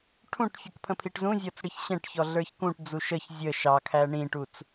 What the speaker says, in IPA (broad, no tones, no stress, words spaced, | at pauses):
ʈʰũʈfʲək pʰə̃pʰiʈzũzʲɔt͡s ɽiçɕɛ̃ʈçɔ ɮə˞çkũʈd͡zu ʃəç zʲə ʃɑkʰæ ɳĩʈut͡s